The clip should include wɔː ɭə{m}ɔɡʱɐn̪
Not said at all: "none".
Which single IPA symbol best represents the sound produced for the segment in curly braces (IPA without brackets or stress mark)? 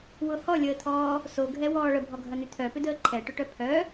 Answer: bʱ